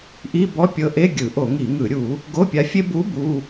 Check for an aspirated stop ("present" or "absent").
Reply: absent